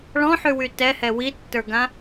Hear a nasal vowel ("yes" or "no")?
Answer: yes